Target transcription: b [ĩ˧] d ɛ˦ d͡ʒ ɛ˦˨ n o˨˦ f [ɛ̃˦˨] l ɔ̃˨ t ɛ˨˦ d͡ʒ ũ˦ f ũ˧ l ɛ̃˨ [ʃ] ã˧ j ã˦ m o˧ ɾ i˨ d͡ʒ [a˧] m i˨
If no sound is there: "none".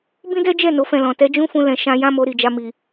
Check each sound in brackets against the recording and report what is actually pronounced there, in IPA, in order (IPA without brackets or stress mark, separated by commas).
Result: ĩ˦, ɛ̃˦˨, ʃ, a˧